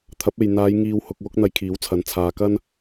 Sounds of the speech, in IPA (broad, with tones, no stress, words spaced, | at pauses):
t̪ʰɐ˨˥p̚e˨j n̪aː˨˧j ŋiː˧whʊ˧k̚ wʊ˥k̚n̪ɐ˧jkʰiː˨˥wt͡sʰɐ˨˥n t͡sʰaː˨kɐ˥n